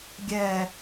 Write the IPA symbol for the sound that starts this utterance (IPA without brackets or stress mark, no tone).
ɡʲ